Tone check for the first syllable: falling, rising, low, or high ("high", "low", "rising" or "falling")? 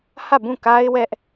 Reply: falling